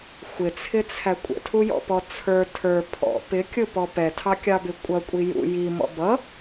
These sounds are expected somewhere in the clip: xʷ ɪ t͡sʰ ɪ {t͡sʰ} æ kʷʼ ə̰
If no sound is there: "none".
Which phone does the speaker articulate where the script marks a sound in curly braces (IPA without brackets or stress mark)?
t͡sʰ